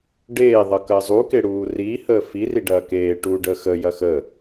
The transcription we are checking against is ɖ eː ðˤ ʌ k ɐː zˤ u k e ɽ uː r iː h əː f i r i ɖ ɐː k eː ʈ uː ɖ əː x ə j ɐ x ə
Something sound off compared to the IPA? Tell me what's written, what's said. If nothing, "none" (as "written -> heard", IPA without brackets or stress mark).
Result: none